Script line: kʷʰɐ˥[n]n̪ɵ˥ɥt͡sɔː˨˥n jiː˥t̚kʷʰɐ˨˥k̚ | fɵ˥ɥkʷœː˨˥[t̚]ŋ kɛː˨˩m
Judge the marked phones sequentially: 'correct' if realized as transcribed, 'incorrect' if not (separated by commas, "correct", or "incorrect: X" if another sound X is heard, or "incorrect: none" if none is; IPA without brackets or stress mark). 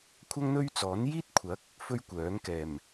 incorrect: ŋ, incorrect: none